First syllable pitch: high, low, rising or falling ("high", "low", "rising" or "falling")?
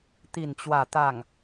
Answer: low